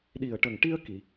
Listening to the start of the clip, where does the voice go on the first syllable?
low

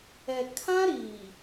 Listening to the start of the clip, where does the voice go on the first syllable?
low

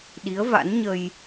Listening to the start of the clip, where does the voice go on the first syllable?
rising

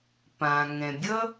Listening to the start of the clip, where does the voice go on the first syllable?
low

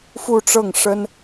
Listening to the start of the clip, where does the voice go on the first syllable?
falling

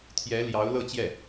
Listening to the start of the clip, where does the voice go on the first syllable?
rising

